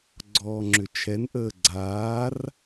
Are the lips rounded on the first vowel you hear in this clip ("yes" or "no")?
yes